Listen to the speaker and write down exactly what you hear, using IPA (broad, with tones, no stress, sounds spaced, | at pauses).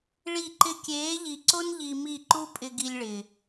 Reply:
ɭ i˦˨ ǃ ɪ˦ kʲ eː˨˦ ʎ i˨ ǀ o˦ n ʎ i˧ m i˦˨ ǃ u˦ pʼ ɪ˧ ɡ i˧ lʲ ɭ ɪ˨